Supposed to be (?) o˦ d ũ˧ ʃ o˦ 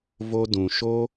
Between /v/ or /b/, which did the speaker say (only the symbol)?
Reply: v